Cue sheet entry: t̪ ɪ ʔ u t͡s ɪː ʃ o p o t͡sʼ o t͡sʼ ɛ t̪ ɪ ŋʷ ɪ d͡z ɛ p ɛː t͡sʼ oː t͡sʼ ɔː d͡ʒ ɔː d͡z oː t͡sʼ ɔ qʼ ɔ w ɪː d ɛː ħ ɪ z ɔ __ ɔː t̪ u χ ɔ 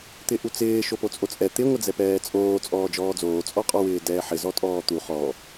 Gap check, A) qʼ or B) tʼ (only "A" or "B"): B